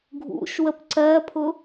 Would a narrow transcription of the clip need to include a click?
yes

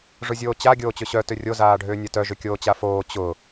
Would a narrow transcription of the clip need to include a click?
no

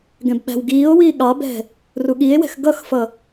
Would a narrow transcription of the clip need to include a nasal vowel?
yes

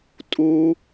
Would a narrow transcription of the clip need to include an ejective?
yes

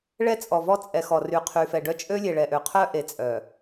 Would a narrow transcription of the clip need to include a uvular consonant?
yes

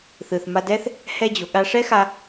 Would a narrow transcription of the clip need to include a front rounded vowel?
no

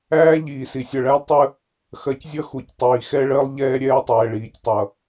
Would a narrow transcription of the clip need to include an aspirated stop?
no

